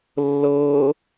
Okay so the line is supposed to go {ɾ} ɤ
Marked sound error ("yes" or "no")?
yes